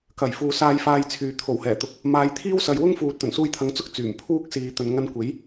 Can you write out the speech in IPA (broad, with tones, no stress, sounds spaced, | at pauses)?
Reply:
k ɐ˨˩ j f uː˨ s aː˧ j f aː˧ j t͡sʰ yː˨ t̪ʰ o˨˩ w h ɛː˨˩ t̪ ʊ˨ k̚ | m aː˨˧ j t̪ʰ iː˥ w s ɐ˨ j w ʊ˥ ŋ f uː˨ t̚ t̪ ɵ˨˩ n s uː˧ j t̪ʰ ɐ˨˧ ŋ t͡s ʊ˥ k̚ t͡s yː˨˩ m pʰ uː˥ k̚ s iː˨ t̪ ɵ˨ n ŋ ɐ˧ n kʷ e˨˥ j